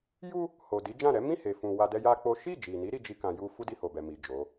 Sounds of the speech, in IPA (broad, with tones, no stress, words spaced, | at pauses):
ju˦ | ho˨di˨˦d͡ʒã˦˨ ɾɛ˨˦mĩ˦˨he˨fũ˨ wa˧dɛ˦ja˦k͡po˦ ʃi˦˨d͡ʒi˨ni˨˦ ɾi˦d͡ʒi˦kã˧ju˦ fu˦di˧ ho˨bɛ˨mi˨ d͡ʒo˨˦